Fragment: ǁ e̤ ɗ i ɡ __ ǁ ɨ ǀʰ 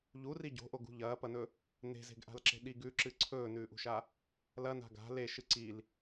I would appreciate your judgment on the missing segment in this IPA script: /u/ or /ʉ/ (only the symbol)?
ʉ